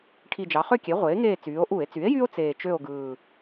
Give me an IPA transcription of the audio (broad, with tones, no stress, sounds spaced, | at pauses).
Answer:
ʈʰ i˨˩ d͡ʒ ɑ˩˧ χ ø˦˨ kʲ e˩˥ ʁʷ eː˩˥ ŋ eː˦˨ t͡s yː˩˧ o̯ ʔ u˧˩˧ e̯ t͡s y˩˥ e̯ j y˦ o̯ t͡s eː˨˩ t͡ʃ ø˦˨ o̯ ɡ ɯː˨˩